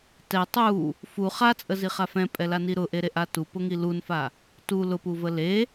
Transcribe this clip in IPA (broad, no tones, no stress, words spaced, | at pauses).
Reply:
tɛ tˤu | fu χat͡sʼəziχa fɛ̃pʼɛlani ɾʊʔeɾeʔa tupʊŋi lunfa | tu lʊpuvə le